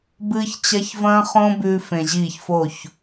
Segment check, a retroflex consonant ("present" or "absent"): absent